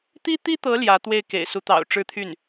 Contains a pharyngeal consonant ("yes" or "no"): no